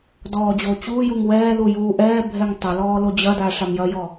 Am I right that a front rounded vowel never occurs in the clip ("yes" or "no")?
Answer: yes